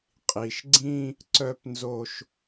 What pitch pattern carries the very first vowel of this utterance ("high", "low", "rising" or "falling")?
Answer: low